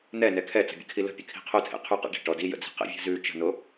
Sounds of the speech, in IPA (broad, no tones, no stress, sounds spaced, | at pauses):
n̪ ɛ n ɛ kʰ ɛ t͡s ə̤ bʲ ə̰ kʰ i l ə̤ pʲ ə kʰ i̤ qʰ o tʰ ḛ qʰ y q ḛ ɖ i̤ ʈ ɔ d i j ə̰ d͡z i̤ q ḛ vʲ ɛ̤ z ʉ t͡ʃ ə̤ n o